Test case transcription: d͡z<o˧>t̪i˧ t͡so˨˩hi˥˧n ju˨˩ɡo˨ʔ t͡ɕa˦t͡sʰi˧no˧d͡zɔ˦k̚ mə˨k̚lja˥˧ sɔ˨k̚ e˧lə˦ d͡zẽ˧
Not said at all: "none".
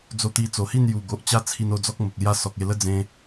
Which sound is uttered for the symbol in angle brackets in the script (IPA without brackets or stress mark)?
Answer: o˧